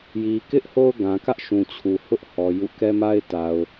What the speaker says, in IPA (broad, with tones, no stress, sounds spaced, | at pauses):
j i˨ k ɪ˦ ʔ h o˦ ʊ̯ ɡ ã˨ k ä˦ ʔ ʃ ũ˨ t͡ɕʰ u˨ h ʊ˦ ʔ h ɔ˨ j ṵ˦˨ k ɛ˦ m a˦ ɪ̯ t a˨ ʊ̯